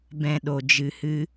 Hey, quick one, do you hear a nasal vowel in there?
yes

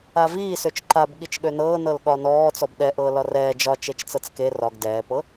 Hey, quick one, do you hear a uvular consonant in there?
no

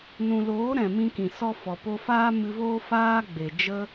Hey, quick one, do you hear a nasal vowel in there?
yes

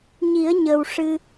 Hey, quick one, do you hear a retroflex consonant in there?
yes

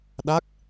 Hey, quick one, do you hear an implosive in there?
yes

